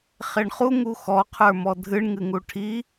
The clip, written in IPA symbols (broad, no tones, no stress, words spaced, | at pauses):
χeɳχu ŋuxɔ qʰə˞mɔdʱɨɳ ŋɨŋuʈʰi